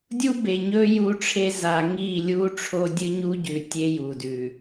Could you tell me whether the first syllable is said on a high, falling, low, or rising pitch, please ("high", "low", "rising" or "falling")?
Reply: high